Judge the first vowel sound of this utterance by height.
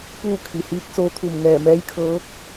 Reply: high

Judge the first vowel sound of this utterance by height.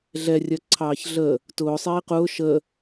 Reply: mid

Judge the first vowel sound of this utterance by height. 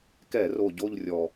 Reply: mid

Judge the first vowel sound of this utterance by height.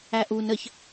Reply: low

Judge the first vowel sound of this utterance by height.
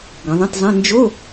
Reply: mid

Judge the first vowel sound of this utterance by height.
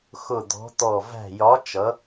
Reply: high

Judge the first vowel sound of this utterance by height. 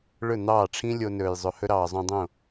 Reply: mid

